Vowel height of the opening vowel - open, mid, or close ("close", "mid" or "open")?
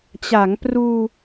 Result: open